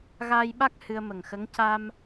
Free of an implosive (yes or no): no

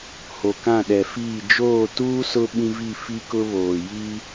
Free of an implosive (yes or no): no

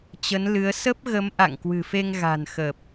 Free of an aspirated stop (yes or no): yes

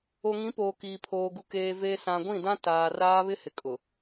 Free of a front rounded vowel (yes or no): yes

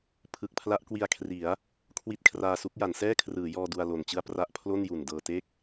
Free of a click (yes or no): yes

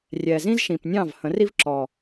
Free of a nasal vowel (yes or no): no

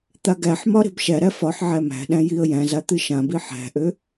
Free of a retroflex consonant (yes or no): yes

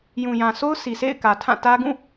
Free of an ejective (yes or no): yes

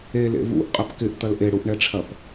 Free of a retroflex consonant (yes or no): no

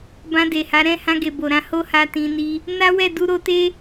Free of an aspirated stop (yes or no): yes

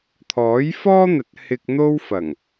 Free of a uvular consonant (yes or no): yes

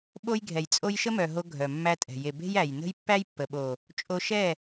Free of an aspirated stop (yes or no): yes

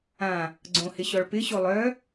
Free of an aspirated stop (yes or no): yes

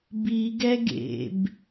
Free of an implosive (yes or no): yes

